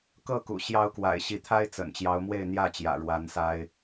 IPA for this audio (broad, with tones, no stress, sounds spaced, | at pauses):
k ɤ˥˨ k ṵ˨˩ ɕ j ɑ˦ ʊ̯ k w a̰˨˩ ɪ̯ ɕ i˨˦ t̪ʰ a˦ ɪ̯ t͡s ə̰˨˩ n t͡ɕ j ɑ˨˦ ʊ̯ m w e˥˨ ɪ̯ n̪ j ä˥˨ t͡ɕ j ä̰˨˩ ɻ w a˨˦ n s a˦ ɪ̯